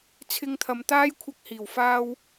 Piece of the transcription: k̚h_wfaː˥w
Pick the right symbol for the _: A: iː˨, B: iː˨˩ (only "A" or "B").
B